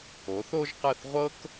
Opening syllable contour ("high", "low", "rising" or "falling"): rising